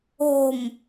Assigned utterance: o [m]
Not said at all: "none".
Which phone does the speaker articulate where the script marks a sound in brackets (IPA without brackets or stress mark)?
m